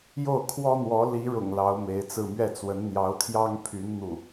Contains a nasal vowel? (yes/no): no